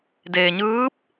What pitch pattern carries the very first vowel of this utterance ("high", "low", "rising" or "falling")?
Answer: low